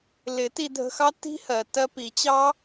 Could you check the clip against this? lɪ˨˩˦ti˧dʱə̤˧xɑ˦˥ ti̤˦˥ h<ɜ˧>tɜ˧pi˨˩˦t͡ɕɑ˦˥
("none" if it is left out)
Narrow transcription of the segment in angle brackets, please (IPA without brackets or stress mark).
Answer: ɜ˩